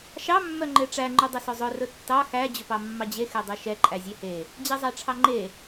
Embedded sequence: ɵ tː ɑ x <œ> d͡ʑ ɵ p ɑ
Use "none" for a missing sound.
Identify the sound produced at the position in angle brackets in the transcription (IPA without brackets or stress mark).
æ